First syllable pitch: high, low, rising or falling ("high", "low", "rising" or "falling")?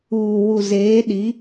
low